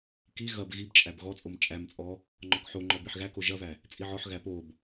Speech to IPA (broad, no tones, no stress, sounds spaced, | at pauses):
k i ɣ ɐ b ɣ i b t͡ʃʼ æ b ɣ ɔ t͡sʼ o m t͡ʃʼ æ m t͡sʼ ɔ | ŋ͡ǃ ɔ k ħ o ŋ͡ǃ ɔ b i ħ ɣ æ k o ʒ ɐ v æ | t͡sʼ i ʕ ɔ ħ ɣ æ p o b